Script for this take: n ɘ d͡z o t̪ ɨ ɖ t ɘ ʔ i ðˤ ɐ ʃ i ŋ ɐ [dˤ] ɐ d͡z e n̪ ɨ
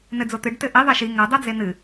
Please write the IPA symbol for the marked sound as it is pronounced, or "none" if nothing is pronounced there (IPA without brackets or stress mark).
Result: dˤ